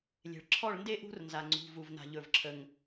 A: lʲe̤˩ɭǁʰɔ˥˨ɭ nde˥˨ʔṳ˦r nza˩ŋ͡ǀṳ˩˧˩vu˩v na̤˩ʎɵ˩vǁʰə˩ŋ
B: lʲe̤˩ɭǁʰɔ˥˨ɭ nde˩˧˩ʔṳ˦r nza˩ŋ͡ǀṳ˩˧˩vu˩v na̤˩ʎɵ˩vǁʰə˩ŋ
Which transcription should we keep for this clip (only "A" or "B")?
A